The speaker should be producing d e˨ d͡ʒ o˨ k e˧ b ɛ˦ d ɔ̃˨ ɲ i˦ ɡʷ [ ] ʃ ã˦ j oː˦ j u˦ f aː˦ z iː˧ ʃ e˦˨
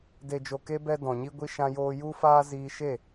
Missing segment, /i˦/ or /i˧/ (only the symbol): i˦